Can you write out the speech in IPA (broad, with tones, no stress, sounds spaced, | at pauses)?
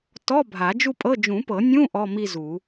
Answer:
t ɔ˧˥˧ bʱ a˨˩˦ d͡ʒ u˥˧ pʼ ɤ˧˥˧ d͡ʒ ũ˨˩˦ p ɤ˨˩˦ nʲ ũ˧˥˧ ʔ ɔ˧˥˧ m i˥˧ z u˨˩˦